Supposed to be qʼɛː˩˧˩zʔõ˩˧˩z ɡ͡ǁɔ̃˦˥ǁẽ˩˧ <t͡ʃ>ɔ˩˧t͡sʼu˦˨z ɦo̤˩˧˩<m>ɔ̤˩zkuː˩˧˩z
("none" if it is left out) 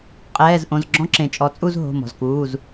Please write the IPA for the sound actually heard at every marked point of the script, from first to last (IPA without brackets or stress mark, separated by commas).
t͡ʃʼ, m